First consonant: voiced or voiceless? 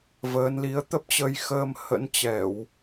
voiced